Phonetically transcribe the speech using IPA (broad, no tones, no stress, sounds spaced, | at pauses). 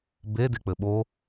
b e d e k͡p ɘ ɓ o